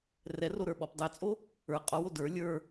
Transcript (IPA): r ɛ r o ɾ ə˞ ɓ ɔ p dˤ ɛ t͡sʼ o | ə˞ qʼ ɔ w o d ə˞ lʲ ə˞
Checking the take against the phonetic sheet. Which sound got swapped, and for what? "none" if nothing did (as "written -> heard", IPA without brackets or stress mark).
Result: none